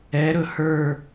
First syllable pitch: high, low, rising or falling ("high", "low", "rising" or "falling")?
rising